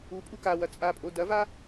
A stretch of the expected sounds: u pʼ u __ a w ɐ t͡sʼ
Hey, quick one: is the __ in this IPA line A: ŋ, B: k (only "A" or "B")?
B